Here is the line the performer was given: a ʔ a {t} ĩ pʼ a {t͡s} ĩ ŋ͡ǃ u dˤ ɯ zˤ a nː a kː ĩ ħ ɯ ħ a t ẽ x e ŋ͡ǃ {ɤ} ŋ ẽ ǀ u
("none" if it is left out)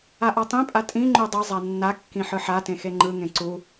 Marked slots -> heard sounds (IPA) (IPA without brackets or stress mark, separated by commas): tˤ, tʼ, ɯ